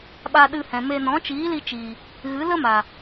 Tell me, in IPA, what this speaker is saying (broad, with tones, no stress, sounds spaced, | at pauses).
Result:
ɓ a˧ ɗ ɨ˧ h ɛ̃˨ m e˧ n ɔ̃˨˦ t͡ʃ iː˨˦ l i˧ t͡ʃ i˨ | ɣ ɨ˨˦ l ə˦ m a˨